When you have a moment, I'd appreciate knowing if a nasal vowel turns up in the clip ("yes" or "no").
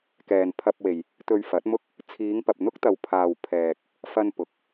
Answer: no